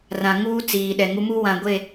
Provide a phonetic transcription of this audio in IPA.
rã˨ ŋuː˦ t͡siː˨ɗɛ˨ ŋu˨˦mu˦wã˨ ɡʷe˦˨

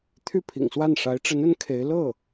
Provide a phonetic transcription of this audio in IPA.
t̪ʰy˥˩pʰḭ˨˩ŋswa˥˩n ʂa˧˥ɪ̯ʈ͡ʂə˧˥nə˧˥n kʰe˧˥ɪ̯ lɤ˥˩

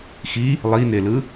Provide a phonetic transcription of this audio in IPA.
xi | lˠinelɯ

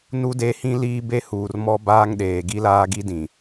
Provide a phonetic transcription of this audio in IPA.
nu˦de˦hĩ˦ liː˦be˦huː˨rmɔ˦ baː˦ŋɗeː˨ ɡi˦laː˦ɡi˦ dĩ˨

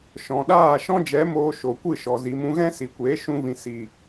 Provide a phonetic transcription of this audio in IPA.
ʃɔ̃˨ɗaː˦˨ ʃɔ̃˦d͡ʒɛ˨˦moː˧ ʃo˨kʷɨ˦˨ʃɔ˨ zi˨mũ˧ɣɛ̃˦ si˨kʷeː˨˦ ʃũ˦vĩ˧ si˨

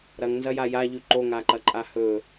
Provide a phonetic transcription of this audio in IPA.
ɾɐŋnzɐja jaʎʉ ǃoŋaǃɐǃʼa hɵ

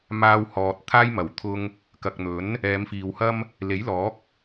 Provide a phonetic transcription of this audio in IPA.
maː˧whɔː˨t̚ t̪ʰaː˥j mɐ˨˩wt̪ʰʊ˧ŋ | kɐ˨k̚n̪ɵ˨˥n | ɛː˨˧mfiː˨whɐ˥m | le˨˥jlɔː˨˥k̚

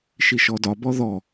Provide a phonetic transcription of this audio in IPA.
ʃiʃɔdɒ bɔðɔ

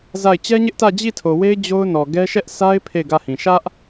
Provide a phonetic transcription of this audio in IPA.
za˦˨ɪ̯ t͡ɕɛ˦ɲɪ˦ʔ tä˦˨d͡ʑi˦˨tʰo˨we˦ɪ̯ d͡ʑo˦ʊ̯nɔ˨ ɡɛ˦ ʃɛ˦ʔsʰa˦ɪ̯ pʰe˦˨ɪ̯ɡä˦˨hĩ˨ ʃä˦ʔ

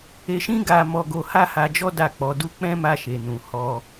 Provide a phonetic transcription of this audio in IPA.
e˧ʃĩ˦ ɡa˧ mɔ˧ ɡo˧ha˦ha˧d͡ʒɔ˦ da˦˨k͡pɔ˨˦du˦ k͡pɛ̃˦ma˧ʃe˨ nũ˨hɔ˧

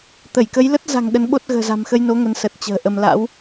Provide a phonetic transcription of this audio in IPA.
t̪ə˧˩jkə˨˦jlə˦˥t̚za̤˨˩ŋ ɗə˨˦nɓo˦˥t̚ ɣə̤ː˨˩za̤˨˩mxə˧jno˨˦ ŋə˨˦n sə˨˩t̚t͡ɕə̤ː˨˩ʔə˧m la̰˧˥w

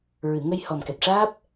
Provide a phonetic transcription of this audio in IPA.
ɹɨ˨˩˨ŋə˧j hɔ˨˩mkɛ˨˩t̚ʂaː˦˥p̚

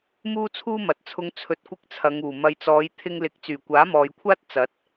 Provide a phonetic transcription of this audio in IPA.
muː˥t͡sʰuː˥mɐ˨˥t̚t͡sʰʊ˧ŋ t͡sʰɵ˧t̚kʷɪ˥k̚t͡sʰɐ˨˧ŋuː˨˩ mɐ˨jt͡sɔː˨˧j t̪ʰɪ˧ŋlɪ˨˥k̚ t͡syː˨˩kʷaː˨˥mɔː˨jkʷʰaː˥t̚ t͡sɐ˨˥t̚

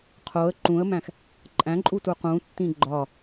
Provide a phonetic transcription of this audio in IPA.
qʰoə̯ ǃũə̯mæ̃x | ǃʼæ̃ǃʼutu qũtːĩ ɡ͡ǃɒ

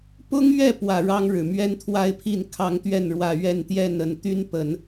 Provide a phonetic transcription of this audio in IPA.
pʊ˥ŋɥɛ˥˩pwä˨˩ ɻɑ˥ŋɻɻ̩˨˩ mɥɛ˥nt̪ʰwa˥ɪ̯pʰi˥˩n kʰɑ˧˥ŋt̪ɥɛ˥˩nɻwä˨˩ ɥɛ˥˧nt̪jɛ˥˩n ə˨˩n t̪y˥npə˨˩˦n

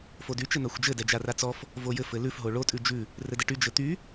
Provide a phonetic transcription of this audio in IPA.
fody t͡ʃɘn̪axʷd͡ʒɘ dɛd͡ʒarat͡sɔf | vojɘ fɘlʉf ɦoɭo tʼʉd͡ʒʉ | rɘdɘʈy d͡ʒɘt̪y

